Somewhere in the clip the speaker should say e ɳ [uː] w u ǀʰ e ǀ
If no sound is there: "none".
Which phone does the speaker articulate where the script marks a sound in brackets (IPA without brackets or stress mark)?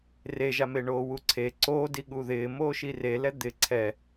oː